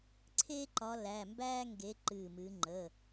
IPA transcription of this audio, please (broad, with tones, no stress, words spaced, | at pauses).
ǀʰe˥ǃɒ˨˦ læ˩˧˩mbæː˥ ŋɡe˨˦ ǃɨ˧˩mɨː˨˦ ŋ͡ǃəː˩˧˩